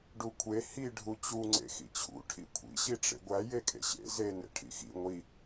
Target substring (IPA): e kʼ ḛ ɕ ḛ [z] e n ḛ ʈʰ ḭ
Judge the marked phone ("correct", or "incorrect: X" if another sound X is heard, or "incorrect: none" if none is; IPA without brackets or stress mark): correct